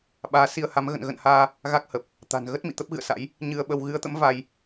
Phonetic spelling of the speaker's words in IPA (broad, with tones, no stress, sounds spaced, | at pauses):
ɓ aː˨˦ s i˧ ə̯ h a˨˦ m ɣ ə̰˧˨ n ɣ ə̰˧˨ n h aː˧ | ɣ a˦˥ k̚ h ə˨˩ p̚ | t̪ a̤˨˩ n ɣ ə˦˥ t̚ m ḭ˧˨ t̪ ə˦˥ p̚ ɣ ɨ̰˧˨ ə̯ s a̰˧˥ j | ɲ ɨ˧ ə̯ ɓ ə˧ w ɣ ɨ˨˦ ə̯ t̪ ə̰˧˥ m v a˧ j